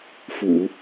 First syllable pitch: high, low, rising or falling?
low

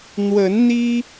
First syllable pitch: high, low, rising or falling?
rising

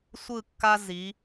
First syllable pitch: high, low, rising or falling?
falling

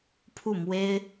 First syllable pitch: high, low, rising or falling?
falling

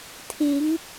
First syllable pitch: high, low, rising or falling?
rising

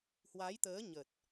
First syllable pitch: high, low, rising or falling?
rising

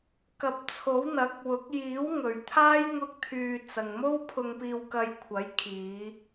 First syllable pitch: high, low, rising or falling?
rising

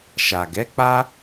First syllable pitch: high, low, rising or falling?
low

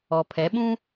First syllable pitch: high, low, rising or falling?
low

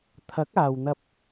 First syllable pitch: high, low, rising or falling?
rising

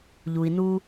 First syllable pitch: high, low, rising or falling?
low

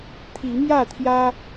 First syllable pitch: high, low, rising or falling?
rising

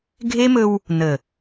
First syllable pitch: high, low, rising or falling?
high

